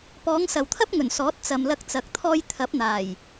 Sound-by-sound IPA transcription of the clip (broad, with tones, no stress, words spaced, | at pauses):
pɔː˨˧ŋsɐ˨wt̪ʰɐ˥p̚ŋɵ˨˩n sɔː˨˥t̚t͡sɐ˨mlɐ˧k̚t͡sɐ˨k̚ t̪ʰɔː˧jt̪ʰɐ˨˥p̚ n̪aː˨˩j